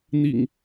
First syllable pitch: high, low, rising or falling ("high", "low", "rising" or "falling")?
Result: low